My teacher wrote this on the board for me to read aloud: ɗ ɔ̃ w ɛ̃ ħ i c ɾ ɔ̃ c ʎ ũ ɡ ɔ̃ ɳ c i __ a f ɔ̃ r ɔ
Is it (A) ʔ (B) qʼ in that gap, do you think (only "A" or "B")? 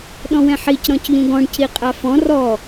B